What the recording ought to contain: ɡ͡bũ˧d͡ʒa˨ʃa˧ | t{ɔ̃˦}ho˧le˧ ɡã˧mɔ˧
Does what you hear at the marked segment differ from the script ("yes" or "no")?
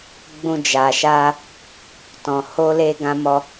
yes